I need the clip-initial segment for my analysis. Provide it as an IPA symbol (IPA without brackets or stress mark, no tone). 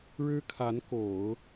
ɻ